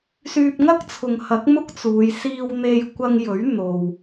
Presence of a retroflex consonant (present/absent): absent